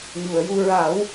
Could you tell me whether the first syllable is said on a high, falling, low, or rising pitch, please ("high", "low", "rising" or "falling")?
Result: low